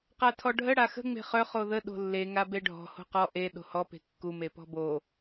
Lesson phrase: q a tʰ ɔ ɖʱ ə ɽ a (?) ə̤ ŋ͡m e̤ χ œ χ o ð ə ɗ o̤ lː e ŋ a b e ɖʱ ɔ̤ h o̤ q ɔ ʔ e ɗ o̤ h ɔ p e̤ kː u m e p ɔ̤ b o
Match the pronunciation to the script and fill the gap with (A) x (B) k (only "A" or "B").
A